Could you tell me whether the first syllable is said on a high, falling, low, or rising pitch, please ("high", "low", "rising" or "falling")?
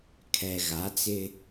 low